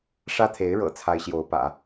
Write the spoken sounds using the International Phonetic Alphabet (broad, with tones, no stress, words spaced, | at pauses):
ʂä˥t̪ʰe˧˥ɪ̯ ɻɤ̰˨˩ t͡sʰa˥ɪ̯ɕjo˧˥ʊ̯pä̰˨˩˦